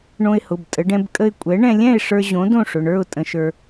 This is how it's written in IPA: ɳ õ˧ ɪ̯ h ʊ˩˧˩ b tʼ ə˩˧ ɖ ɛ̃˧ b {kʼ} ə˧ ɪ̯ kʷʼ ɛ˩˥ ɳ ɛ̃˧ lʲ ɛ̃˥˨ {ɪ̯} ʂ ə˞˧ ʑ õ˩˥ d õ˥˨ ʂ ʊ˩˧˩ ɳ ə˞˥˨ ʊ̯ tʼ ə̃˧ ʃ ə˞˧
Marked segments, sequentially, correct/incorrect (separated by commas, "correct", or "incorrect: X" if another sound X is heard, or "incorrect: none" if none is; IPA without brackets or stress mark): correct, correct